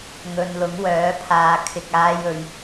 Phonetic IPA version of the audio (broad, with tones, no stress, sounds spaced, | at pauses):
ŋ ɵ˨ n l ʊ˨˥ ŋ w œː˨˥ pʰ aː˨ kʰ ɪ˨ k̚ aː˧ j ɵ˨ ɥ